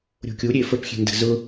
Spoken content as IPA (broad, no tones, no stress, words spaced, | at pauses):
ɾʲo̤kʲu ɾʲefəp xʲe̤ndə̤zʊ